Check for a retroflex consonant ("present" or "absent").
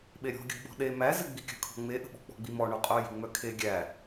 present